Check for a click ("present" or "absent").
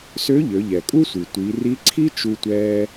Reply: present